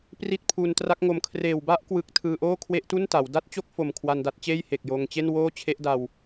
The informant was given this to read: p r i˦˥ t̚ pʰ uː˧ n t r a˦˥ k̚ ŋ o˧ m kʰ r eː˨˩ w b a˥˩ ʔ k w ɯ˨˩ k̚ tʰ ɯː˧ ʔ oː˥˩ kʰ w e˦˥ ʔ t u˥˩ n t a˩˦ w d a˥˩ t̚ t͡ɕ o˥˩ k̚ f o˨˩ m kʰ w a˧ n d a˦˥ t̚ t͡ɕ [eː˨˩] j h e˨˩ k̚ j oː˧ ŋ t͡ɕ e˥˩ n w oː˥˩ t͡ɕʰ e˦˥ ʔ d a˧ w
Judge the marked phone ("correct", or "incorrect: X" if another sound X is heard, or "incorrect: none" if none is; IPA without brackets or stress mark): incorrect: eː˥˩